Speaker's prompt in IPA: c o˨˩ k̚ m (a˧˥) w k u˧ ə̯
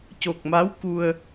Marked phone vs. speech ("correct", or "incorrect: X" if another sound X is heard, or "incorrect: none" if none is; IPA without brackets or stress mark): correct